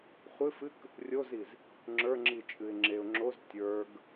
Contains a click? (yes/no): yes